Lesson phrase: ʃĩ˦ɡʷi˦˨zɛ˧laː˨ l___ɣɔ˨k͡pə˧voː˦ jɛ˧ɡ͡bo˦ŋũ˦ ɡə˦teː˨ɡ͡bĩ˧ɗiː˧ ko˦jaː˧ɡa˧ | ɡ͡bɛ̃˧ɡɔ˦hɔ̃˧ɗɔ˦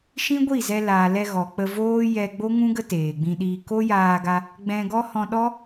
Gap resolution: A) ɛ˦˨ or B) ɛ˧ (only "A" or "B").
B